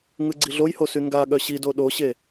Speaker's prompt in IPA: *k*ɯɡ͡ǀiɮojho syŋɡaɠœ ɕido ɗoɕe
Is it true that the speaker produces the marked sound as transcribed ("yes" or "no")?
no